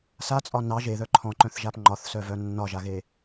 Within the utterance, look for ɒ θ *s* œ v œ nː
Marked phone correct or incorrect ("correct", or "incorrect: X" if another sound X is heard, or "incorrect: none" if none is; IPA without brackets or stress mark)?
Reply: correct